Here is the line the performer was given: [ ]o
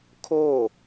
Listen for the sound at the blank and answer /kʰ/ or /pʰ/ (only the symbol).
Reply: kʰ